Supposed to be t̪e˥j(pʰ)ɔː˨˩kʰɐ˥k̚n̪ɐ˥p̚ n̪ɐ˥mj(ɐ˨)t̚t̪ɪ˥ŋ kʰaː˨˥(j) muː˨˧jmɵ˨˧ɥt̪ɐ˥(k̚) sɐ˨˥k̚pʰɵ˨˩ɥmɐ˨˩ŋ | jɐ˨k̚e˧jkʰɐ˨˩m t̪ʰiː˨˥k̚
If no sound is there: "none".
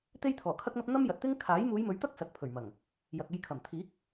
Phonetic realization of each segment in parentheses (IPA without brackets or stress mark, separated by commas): t̪ʰ, ɐ˨, j, k̚